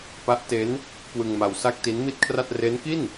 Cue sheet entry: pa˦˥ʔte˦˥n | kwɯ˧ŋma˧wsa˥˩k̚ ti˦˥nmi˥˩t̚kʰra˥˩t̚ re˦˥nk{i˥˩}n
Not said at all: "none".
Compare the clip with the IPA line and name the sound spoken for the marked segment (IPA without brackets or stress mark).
i˥˩